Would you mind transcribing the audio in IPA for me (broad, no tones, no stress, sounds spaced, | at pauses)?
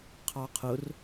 qʰ ɑ qʰ ʊ r